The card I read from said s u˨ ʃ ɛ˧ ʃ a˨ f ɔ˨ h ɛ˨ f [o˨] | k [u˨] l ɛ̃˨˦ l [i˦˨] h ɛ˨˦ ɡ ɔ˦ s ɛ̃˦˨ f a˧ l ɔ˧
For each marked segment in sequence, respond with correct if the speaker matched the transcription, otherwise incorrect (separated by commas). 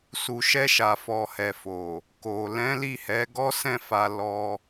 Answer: correct, incorrect, correct